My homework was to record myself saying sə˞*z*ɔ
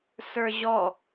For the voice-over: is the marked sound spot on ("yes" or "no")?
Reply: no